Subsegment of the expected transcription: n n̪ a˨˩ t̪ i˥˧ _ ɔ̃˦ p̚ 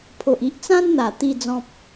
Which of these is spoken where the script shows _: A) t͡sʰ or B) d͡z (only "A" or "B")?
B